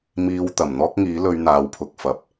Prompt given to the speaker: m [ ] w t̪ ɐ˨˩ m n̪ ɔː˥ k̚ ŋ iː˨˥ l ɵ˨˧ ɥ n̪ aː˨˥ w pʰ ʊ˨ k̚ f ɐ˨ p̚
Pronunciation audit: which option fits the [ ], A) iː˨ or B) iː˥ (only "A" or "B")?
B